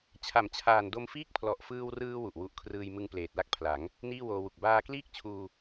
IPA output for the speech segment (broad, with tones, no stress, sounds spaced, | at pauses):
t͡ɕʰ a˩˦ m t͡ɕʰ aː˨˩ n d o˧ m f iː˦˥ k̚ pʰ l ɔ˨˩ ʔ f ɯː˧ w r ɯː˧ w u˨˩ ʔ w u˦˥ ʔ kʰ r ɯː˧ j m ɯ˧ ŋ p l eː˨˩ t̚ l a˥˩ k̚ pʰ l a˩˦ ŋ | n iː˥˩ w oː˧ w u˨˩ k̚ b aː˧ k l iː˥˩ k̚ t͡ɕʰ uː˧